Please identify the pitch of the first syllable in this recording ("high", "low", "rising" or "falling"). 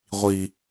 high